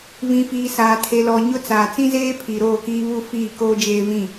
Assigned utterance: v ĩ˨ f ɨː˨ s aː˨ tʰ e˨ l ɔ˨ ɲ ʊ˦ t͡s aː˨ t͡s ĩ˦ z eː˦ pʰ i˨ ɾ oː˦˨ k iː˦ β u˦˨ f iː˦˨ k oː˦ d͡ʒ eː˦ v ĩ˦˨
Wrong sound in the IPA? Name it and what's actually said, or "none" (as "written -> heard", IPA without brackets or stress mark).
ɨː˨ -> iː˨